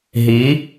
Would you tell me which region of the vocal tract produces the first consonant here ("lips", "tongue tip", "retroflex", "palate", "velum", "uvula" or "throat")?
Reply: throat